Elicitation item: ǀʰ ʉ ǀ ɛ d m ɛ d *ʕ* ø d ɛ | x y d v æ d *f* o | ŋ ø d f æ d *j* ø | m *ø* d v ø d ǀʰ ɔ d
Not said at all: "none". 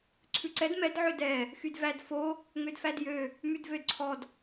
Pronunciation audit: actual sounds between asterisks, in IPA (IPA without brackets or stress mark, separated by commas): ʕ, f, j, ʉ